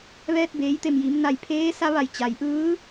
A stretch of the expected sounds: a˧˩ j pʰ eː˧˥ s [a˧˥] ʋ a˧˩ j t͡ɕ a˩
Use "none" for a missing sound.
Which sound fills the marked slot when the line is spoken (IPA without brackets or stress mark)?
a˧